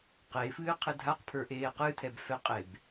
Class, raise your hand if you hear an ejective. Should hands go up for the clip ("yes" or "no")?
yes